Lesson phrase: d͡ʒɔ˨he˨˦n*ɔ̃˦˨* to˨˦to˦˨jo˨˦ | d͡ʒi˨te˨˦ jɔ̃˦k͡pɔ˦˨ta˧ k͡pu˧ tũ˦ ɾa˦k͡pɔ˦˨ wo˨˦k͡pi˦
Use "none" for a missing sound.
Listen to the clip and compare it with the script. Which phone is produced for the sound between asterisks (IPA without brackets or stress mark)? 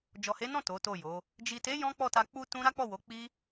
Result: ɔ̃˦˨